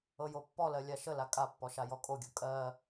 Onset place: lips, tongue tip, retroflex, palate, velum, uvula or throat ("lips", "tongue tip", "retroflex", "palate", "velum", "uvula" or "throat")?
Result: palate